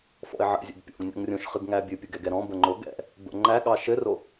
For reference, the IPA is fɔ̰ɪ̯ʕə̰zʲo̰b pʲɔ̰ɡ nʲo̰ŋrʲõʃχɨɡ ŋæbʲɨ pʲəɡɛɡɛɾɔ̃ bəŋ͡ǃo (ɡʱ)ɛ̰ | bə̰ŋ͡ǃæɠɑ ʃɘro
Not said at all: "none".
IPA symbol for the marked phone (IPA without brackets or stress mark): ɡ